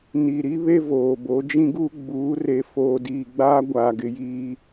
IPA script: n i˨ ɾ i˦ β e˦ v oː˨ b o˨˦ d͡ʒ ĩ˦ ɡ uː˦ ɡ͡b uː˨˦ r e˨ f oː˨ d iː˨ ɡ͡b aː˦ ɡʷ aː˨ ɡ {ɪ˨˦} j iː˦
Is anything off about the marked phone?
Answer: no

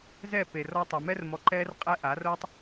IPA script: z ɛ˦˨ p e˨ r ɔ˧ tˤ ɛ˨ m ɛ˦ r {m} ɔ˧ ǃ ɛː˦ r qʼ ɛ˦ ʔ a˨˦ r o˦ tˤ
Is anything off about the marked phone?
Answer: no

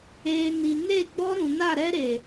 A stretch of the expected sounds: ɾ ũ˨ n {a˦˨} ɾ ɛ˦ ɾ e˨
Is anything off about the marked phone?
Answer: no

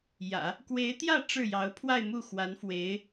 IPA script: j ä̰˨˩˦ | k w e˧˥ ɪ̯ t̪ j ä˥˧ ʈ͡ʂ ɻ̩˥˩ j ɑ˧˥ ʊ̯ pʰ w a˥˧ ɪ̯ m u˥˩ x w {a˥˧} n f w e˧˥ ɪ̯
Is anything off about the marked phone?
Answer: yes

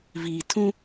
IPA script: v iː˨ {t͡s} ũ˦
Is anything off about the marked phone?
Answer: yes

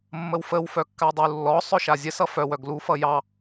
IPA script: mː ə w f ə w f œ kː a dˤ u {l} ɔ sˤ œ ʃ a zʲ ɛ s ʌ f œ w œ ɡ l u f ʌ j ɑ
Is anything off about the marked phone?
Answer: yes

